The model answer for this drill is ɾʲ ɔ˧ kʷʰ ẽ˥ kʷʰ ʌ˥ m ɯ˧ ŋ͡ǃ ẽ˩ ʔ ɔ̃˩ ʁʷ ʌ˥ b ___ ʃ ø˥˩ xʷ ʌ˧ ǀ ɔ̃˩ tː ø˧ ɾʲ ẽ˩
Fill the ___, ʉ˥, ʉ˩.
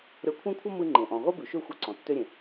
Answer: ʉ˩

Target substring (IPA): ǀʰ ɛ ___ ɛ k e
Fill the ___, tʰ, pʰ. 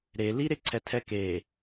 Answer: tʰ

